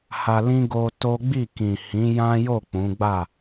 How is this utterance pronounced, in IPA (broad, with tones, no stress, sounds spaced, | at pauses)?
h a˧ l ĩ˦ ɡ o˦ t o˦ ɡ͡b i˦˨ k ĩ˨ h ĩ˨˦ j ã˦ j o˦˨ k͡p ũ˨˦ ɡ͡b a˦˨